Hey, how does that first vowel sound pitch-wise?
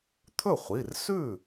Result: falling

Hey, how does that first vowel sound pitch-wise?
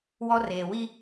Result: high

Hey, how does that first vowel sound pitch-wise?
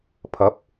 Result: rising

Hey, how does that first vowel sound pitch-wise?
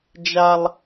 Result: high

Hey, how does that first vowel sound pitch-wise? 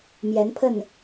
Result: rising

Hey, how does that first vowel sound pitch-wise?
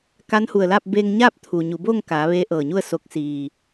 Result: rising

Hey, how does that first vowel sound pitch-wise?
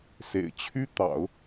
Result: low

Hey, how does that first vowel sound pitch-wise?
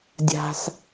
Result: low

